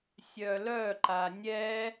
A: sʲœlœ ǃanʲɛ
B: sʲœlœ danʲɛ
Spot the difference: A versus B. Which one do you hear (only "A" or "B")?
A